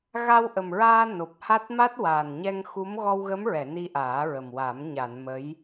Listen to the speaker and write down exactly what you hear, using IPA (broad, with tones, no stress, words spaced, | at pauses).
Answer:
ɣa˧wʔə˨˩mɹaː˧ no˨˩p̚ha˦˥t̚ ma˦˥t̚waː˨˩nɲɛ˧ŋxu˧˥m ɣɔ˧wɣə˧˥mɹɛ˨˩˨ ni˧ʔaː˨˩˦ɹə˨˩mwa˨˩˦m ɲa˨˩˨n mə˧˥j